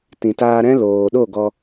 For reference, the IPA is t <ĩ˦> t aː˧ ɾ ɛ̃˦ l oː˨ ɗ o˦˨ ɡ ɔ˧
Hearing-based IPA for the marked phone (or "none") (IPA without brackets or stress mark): ĩ˨